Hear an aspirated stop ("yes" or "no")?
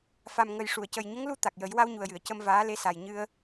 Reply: no